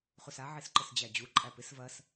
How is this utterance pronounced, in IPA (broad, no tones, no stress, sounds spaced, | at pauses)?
χ u s a ʕ i s ǃ ə s d͡ʑ æ d͡ʑ u ǃʼ æ p ɪ s v ɐ s